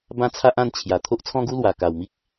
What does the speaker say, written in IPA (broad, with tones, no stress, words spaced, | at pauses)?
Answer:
bã˦t͡sʰa˦ʔã˥˧nt͡ɕʰja˨˩ t̪ʰo˦ʔt͡sʰɔ̃˦ɡu˦lwa˨˩ ka˨˩wmi˦k̚